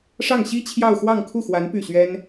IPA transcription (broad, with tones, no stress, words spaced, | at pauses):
ʂɑ˥˩ŋ ɕi˥t͡ɕʰjɑ˥˧ʊ̯xwɑ˥˧ŋ kʰu˥˩xwa˧˥n py˥˩ɕɥɛ˥n